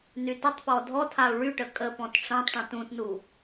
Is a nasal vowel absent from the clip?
no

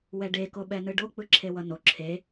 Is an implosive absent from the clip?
no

